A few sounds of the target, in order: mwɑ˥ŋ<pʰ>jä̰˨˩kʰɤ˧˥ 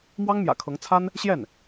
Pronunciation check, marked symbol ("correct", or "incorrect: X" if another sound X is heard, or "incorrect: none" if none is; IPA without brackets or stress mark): incorrect: m